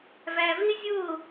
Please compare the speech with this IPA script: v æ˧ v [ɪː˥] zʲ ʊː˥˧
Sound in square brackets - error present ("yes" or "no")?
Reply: no